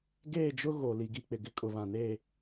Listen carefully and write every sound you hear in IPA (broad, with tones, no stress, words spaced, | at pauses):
ɡeː˦˨d͡ʒʊ˦ ɣo˨ li˨ɡi˦˨k͡pɪ˨ ɡɪ˦ kʼʊ˨βã˨neː˦˨